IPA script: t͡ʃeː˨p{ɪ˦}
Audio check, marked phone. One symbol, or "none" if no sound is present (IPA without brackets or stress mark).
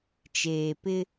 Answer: ɪ˦